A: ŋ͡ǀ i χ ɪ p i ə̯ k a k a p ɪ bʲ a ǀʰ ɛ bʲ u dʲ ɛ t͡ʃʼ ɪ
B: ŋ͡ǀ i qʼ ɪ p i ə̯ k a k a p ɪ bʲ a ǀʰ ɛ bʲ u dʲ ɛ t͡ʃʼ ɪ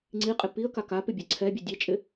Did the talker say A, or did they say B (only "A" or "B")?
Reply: B